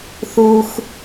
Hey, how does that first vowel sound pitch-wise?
low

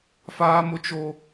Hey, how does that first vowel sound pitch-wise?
high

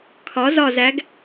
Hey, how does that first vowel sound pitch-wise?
rising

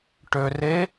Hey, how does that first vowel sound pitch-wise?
low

